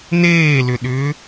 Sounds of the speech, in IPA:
neːlʏɗʏː

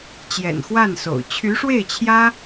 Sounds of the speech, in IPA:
t͡ɕjɛ̰˨˩nxwa˥˩nso̰˨˩ʊ̯ t͡ɕʰy˧˥ʂwe˥˩ɪ̯t͡ɕʰjä˥

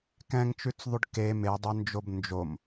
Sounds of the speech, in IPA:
kɛ̃ŋt͡ʃʉt͡sðˤʉɖ ke medˤœnd͡ʒob nd͡ʒom

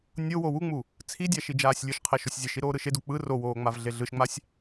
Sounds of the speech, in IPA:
nʲowo wuŋ͡mu | t͡sʰidʲa ʃid͡ʒaːsʲlʲɯʃqʰɛ ʃosʲzʲeʃi ɾoːɾɯʃedu k͡pɯ rowoː ŋ͡mavɮeɮɯʃŋ͡masʲ

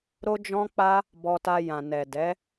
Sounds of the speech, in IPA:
ɾo˦d͡ʒɔ̃˦k͡pa˦ | bɔ˧ta˧ jã˨nɛ˨dɛ˨˦

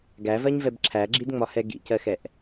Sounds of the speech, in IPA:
ɡævɜɲvɛb ǁʰæɡ͡ǁidŋ͡mɒhɛ ɡḭcɜxɛʔ

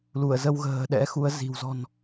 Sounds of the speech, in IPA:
lu˧˩ə̯ zə˧wɣə̤ː˨˩ ɗɛ̰˧˥xu˨˦ə̯zi̤˨˩w zɔ̤˨˩n

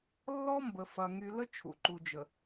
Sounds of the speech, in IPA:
lːɔ˦mbə˨fɐ˨ ŋy˨lə˦ t͡ʃʰṵ˨ǃu˨ d͡ʒə˨

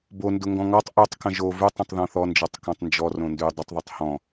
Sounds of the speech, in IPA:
bondʊ ŋɡɔ̃ŋɔtˤ ʔʉtˤ kə̃ʒo vʉtˤə̃tˤ ðɔ̃θɔnd͡ʒɔtˤ kɔ̃tˤnd͡ʒɔ rõndʉ dˤʊtˤðˤʉtˤ hɔ̃

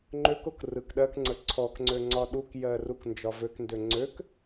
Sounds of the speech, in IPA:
ŋ͡ǃøkok rɯkɗɜkŋ͡ǀə ǀʰɔkŋ͡ǀø ŋ͡ǀɒɗukjɜ ruknd͡ʒɒvøkndø ŋ͡ǀøk

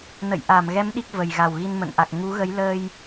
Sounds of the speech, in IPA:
nə̰˧˨j ʔa˧˩mɣɛ˨˦m ɗi˦˥k̚və˨˩jɣa˨˩w ɣi˧nmə̰˧˨nʔa˨˩k̚ ŋu˨˦ɣə˨˦j ləː˧j

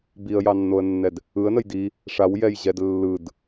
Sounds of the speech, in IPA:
biə̯jɑnːoə̯nːɛd | ɯə̯nəj di | ʂawjɛjʑɛd lːɯd

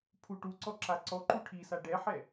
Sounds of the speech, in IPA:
pʰuʈuǀɔ ǁaǀɔǃu ʈʰisa ɖɛħɛ

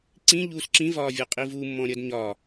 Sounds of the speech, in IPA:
ǀĩʎuːs ǁĩvɒːvʲɒqʼi vumːɔ̃ɾʲʌd ɲɒ

